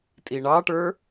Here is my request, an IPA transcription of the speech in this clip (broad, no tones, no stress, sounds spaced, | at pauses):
tʼ i ɳ ɑ ʈ ə˞